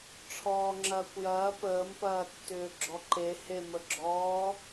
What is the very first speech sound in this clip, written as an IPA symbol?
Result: ʈ͡ʂʰ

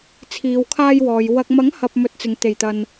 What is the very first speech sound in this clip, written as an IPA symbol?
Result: t͡sʰ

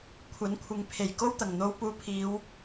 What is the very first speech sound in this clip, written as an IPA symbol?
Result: kʷʰ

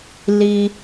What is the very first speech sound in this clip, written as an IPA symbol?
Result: l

